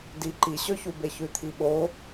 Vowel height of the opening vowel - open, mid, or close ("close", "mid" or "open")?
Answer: close